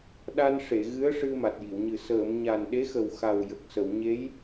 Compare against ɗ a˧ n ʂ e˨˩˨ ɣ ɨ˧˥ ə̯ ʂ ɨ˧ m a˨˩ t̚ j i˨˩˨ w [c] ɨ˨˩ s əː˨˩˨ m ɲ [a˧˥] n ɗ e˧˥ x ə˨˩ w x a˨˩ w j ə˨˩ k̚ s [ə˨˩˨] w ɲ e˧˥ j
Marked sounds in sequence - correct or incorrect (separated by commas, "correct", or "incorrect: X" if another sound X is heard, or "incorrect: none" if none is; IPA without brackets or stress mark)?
incorrect: ɲ, incorrect: a˨˩, correct